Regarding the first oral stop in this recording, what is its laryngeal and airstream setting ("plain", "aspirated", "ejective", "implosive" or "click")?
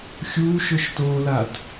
plain